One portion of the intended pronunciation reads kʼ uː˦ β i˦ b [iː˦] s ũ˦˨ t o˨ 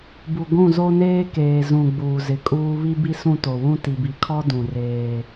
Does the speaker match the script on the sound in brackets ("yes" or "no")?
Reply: no